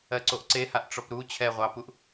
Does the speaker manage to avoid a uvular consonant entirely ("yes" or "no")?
no